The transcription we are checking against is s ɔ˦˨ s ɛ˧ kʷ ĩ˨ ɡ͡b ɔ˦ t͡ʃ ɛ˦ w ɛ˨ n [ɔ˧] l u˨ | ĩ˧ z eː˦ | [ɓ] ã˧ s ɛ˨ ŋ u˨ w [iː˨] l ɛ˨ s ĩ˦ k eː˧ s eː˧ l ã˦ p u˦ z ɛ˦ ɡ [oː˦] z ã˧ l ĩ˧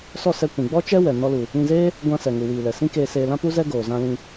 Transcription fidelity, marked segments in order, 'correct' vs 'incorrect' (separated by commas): correct, incorrect, correct, incorrect